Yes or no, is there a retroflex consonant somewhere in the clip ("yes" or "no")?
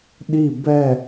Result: no